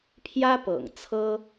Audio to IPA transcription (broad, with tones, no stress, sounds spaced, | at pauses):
pʰ j ä˥ p ɤ̰˨˩ ŋ t͡sʰ ɤ˥